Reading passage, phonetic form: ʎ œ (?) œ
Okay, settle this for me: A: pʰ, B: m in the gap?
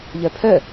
A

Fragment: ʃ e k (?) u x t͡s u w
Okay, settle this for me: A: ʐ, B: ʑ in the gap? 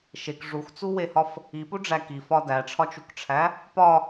A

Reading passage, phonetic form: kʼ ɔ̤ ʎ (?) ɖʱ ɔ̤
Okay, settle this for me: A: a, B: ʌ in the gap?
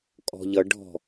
B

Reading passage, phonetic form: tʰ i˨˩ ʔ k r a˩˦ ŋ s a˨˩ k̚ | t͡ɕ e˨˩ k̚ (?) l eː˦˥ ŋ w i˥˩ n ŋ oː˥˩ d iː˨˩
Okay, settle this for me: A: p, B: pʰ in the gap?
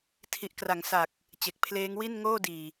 B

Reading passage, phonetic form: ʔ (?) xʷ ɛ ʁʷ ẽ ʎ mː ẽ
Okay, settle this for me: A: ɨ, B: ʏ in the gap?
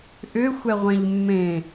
B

